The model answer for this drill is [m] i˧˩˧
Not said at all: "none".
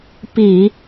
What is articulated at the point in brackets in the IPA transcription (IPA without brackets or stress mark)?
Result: p